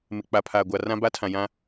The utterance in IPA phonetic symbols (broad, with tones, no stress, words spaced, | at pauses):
mɪ˨k͡pa˨pʰaː˨ɡʷa˨ rã˦ba˦tʰã˨jã˦